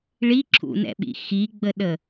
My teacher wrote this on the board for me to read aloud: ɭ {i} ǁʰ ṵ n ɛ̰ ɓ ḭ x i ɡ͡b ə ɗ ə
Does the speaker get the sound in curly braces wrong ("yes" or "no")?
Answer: no